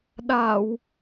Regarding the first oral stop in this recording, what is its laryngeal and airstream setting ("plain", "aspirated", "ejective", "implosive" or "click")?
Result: implosive